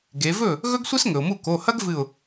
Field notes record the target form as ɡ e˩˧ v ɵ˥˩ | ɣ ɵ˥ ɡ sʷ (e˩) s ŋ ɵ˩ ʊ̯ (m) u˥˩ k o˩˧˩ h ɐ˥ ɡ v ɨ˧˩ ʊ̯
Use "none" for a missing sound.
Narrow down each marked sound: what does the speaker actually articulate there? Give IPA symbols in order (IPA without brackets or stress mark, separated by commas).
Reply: e˥, m